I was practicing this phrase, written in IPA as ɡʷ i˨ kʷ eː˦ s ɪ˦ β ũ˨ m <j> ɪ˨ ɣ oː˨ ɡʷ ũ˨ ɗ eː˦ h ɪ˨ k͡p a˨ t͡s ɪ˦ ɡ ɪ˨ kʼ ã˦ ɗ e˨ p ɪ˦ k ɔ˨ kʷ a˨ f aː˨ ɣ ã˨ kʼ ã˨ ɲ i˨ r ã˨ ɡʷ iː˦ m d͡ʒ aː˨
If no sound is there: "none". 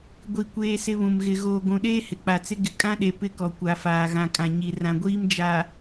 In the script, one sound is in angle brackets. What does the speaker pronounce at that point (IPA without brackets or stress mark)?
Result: ɣ